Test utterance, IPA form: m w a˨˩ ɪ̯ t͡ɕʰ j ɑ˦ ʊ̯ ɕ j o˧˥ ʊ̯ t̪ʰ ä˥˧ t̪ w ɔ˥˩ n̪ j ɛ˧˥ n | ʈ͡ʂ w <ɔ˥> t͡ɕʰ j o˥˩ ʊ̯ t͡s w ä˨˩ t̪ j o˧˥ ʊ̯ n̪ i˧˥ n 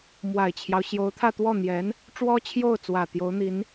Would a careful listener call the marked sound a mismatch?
no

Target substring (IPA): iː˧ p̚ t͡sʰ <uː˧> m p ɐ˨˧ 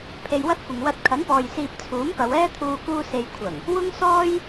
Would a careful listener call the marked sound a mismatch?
yes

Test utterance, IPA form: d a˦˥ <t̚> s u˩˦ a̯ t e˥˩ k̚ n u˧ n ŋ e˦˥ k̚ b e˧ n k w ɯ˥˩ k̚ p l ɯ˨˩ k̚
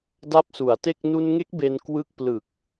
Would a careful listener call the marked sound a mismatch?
yes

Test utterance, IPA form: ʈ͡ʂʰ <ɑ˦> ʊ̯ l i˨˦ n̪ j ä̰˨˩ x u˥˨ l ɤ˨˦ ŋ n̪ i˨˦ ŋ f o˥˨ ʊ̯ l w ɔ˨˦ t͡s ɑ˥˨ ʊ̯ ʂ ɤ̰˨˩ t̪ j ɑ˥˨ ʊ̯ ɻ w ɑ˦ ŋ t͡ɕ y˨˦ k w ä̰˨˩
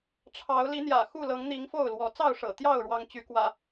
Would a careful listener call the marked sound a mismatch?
yes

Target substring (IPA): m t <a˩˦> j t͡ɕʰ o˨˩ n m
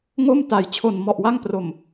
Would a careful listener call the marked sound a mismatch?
no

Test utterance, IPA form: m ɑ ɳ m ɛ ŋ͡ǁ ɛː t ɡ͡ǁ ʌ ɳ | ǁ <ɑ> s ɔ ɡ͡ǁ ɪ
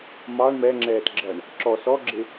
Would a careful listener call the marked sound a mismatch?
yes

